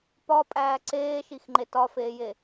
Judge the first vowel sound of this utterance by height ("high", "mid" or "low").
low